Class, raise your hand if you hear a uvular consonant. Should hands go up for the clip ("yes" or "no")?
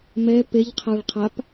yes